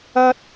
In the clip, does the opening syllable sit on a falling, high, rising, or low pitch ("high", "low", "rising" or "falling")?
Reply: high